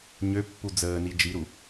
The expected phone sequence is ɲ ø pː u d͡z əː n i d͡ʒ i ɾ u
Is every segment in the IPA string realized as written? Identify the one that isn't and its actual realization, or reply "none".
none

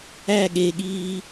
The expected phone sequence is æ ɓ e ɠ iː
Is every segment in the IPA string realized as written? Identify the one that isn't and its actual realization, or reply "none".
ɓ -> ɠ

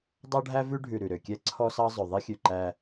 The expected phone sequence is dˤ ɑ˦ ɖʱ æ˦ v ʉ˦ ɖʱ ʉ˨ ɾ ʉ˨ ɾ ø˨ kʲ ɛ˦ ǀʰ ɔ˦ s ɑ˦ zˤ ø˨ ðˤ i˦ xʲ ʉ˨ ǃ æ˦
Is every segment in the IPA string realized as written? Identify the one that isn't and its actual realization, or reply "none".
none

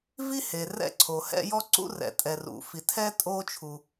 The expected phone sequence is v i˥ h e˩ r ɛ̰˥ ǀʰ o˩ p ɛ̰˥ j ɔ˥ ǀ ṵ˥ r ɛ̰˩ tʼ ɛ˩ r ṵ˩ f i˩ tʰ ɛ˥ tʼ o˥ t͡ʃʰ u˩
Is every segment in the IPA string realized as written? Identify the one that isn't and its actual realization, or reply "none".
p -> h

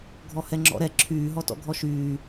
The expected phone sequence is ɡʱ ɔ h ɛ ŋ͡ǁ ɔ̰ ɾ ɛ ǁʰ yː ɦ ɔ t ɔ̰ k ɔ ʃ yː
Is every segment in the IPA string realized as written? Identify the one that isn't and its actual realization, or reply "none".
k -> ɡʱ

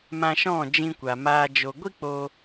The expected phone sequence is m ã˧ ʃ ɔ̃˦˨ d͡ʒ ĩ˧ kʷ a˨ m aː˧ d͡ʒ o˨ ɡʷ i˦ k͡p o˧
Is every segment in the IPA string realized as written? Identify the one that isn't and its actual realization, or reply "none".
none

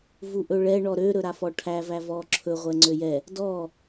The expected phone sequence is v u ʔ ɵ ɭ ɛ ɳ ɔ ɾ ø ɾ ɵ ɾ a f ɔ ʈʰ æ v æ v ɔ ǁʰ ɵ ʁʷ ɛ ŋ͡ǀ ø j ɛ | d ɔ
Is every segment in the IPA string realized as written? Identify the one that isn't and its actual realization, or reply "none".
none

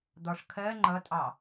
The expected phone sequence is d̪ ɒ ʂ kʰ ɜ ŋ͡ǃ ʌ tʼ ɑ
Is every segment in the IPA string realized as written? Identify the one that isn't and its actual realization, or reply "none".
none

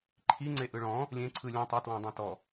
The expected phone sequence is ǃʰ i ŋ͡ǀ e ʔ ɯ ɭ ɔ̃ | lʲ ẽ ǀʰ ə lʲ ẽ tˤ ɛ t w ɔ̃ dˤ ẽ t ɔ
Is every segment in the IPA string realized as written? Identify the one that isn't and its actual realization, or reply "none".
ə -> ɯ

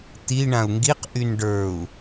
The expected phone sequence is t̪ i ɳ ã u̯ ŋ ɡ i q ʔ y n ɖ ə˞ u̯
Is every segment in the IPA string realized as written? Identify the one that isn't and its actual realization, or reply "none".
none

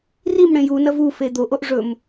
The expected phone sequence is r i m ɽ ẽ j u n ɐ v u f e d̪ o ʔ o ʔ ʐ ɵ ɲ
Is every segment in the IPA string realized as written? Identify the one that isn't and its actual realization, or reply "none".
ɲ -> m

